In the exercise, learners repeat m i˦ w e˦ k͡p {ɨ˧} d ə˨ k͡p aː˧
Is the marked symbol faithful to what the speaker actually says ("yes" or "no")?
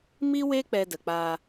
no